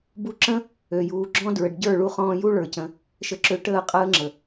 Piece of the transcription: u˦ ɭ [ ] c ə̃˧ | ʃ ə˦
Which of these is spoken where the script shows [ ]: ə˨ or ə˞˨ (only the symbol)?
ə˞˨